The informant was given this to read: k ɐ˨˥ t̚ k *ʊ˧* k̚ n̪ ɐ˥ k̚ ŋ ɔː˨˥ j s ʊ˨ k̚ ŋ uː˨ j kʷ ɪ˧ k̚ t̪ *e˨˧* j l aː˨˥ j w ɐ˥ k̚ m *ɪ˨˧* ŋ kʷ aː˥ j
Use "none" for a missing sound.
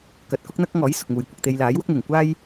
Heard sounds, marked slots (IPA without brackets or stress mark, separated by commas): ʊ˥, e˧, ɪ˨˩